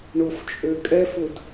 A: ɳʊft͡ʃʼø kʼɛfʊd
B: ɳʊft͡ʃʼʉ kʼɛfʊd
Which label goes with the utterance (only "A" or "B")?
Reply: A